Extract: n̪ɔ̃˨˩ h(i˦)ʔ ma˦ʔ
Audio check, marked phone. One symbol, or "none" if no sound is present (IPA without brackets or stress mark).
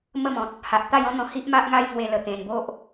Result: i˦